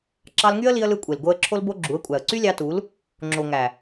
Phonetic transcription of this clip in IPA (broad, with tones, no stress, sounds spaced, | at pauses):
ǁ ɑ˧ l ŋ y˦ ə̯ l i˧ ə̯ l ɯ˧ kʷʼ e˨ l ɡ o˧ ə̯ ǁʰ o˦ l b o˦ ɡ͡ǁ u˨˦ ə̯ kʷʼ æ˨ ə̯ ǀ y˦ lʲ ɑ˧ t u˨˦ l | ŋ͡ǁ o˨ ŋ æ˨